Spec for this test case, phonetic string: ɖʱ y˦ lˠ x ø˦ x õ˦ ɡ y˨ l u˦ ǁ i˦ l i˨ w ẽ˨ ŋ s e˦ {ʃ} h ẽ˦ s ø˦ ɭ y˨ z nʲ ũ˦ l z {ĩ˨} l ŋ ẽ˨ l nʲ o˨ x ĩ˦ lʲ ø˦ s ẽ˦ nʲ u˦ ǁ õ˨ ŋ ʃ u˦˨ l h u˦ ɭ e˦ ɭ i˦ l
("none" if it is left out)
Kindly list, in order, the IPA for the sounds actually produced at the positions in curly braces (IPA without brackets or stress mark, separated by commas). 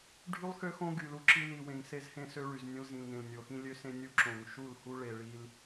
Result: z, ĩ˨